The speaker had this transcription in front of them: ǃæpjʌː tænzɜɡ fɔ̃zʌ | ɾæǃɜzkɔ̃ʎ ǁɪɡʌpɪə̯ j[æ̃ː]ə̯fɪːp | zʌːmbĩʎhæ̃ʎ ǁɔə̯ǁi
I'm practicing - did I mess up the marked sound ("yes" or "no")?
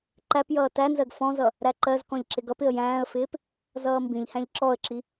no